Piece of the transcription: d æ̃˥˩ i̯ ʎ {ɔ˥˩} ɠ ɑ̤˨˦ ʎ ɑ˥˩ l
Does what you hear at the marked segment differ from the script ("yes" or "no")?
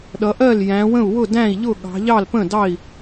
yes